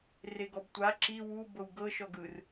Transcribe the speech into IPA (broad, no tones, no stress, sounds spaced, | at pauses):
r e ɡ ɔ b tʷ a ǁ i w u b ɤ w ɡ ɤ ʃ ɔ ɡ ɯ r